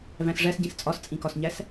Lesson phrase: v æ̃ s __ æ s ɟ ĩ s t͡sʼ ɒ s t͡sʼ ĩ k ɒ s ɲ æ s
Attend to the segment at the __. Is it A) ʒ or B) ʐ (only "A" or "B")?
B